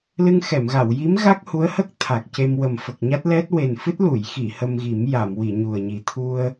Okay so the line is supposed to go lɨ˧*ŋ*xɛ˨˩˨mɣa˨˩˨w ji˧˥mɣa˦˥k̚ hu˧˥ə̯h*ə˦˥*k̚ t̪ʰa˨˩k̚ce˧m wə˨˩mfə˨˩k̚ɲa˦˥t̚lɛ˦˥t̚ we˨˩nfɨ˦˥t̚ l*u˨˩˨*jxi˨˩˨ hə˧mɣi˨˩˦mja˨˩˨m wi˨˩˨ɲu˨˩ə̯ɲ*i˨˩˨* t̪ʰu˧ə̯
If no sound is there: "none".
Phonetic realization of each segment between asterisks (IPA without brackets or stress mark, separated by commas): ŋ, ə˦˥, u˨˩˨, i˨˩